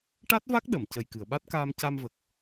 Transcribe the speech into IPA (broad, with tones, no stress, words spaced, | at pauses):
ʈa˦˥t̚va˦˥k̚ ɗə˨˩˨m cə˨˩jkɨ˨˩˨ə̯ɓa˦˥t̚ kaː˧mca˧mvə˨˩k̚